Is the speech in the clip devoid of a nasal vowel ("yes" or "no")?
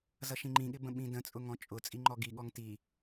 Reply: no